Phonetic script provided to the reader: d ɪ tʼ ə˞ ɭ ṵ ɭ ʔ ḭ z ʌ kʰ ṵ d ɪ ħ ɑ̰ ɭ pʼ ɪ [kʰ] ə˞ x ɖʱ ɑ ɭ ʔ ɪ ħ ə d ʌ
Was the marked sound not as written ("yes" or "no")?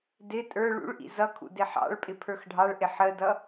yes